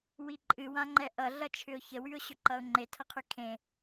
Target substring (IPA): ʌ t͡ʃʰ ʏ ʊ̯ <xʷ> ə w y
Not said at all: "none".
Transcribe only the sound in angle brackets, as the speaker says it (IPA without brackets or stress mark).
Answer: ç